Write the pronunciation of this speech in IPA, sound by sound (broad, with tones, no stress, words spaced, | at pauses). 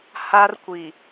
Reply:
ha˦r kʷi˨